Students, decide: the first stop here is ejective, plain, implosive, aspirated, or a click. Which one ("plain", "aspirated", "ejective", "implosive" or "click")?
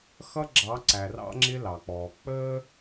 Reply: click